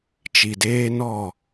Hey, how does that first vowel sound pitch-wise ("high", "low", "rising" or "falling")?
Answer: low